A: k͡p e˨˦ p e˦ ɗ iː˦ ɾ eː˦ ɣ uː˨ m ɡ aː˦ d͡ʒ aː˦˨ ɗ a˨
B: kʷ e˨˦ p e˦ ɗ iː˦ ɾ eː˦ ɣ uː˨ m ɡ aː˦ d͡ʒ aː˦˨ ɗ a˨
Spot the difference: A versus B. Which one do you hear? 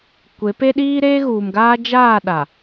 B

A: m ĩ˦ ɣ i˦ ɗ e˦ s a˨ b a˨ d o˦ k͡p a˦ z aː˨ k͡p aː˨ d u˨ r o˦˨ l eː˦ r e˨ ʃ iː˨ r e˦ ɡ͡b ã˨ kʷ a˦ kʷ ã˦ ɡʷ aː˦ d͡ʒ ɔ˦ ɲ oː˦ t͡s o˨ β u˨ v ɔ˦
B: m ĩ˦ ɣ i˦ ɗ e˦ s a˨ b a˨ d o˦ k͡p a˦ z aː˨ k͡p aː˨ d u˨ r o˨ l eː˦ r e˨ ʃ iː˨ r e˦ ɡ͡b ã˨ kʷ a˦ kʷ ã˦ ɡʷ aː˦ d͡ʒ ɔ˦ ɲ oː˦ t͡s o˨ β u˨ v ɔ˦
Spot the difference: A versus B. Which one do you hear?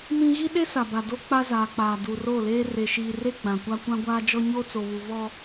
A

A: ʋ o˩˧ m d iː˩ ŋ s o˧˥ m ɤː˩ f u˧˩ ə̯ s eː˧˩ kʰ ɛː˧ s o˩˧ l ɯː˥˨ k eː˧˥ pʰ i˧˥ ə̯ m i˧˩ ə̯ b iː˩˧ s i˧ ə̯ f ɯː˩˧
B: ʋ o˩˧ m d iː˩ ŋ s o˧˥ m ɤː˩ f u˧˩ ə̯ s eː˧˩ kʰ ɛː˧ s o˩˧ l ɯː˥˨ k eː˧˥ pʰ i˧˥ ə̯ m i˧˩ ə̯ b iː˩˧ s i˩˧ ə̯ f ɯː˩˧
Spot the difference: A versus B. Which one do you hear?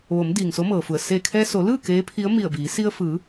A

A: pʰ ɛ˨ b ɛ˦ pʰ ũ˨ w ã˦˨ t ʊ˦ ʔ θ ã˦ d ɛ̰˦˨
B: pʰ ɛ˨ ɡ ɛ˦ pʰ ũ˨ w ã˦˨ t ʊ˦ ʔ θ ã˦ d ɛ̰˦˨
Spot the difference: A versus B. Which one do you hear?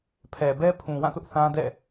A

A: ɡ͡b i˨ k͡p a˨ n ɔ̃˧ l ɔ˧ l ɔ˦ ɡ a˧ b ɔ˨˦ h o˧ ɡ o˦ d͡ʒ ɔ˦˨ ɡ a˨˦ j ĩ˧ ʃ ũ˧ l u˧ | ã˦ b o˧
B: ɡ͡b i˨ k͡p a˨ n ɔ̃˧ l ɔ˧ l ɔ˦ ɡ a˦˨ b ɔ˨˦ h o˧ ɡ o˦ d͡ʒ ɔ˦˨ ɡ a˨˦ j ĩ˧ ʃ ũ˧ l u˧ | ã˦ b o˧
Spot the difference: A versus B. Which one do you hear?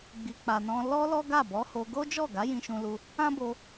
B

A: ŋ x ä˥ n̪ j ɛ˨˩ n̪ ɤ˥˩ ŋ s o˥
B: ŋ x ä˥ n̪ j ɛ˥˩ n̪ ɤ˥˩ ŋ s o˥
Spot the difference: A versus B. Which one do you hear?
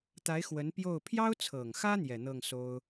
A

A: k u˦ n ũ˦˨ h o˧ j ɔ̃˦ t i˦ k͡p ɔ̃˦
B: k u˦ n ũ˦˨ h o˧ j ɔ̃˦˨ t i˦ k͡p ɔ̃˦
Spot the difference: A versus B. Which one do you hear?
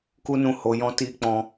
A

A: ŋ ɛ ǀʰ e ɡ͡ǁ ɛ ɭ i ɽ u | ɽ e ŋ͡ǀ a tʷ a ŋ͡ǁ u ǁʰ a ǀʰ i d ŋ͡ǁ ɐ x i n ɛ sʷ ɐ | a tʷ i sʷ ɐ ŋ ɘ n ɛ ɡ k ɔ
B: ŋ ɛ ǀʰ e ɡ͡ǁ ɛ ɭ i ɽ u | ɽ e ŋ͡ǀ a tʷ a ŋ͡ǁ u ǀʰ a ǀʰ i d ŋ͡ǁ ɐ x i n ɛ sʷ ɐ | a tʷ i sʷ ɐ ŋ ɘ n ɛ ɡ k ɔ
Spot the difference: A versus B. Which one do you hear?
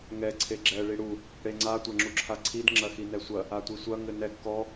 A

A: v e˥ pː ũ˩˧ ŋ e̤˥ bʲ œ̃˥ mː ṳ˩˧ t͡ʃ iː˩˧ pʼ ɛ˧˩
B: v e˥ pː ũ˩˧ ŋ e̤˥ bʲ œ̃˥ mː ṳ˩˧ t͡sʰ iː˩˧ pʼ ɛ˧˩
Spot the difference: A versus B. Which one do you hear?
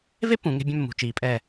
A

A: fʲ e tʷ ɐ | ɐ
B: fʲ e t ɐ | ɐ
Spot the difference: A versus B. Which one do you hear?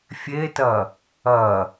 B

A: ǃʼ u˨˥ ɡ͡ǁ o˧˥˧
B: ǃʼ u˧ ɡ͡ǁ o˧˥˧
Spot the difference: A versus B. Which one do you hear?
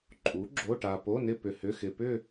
A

